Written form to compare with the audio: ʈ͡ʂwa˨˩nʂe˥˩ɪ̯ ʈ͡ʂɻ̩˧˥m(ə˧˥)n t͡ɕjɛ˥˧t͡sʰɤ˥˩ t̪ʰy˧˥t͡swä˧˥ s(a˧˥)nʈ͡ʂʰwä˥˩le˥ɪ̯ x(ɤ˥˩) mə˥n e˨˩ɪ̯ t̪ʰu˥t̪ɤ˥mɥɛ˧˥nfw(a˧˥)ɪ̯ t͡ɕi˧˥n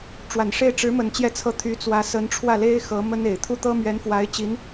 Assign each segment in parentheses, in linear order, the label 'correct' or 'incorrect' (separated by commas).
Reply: incorrect, incorrect, incorrect, correct